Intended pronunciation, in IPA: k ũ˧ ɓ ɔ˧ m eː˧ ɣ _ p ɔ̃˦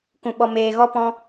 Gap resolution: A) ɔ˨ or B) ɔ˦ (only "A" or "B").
B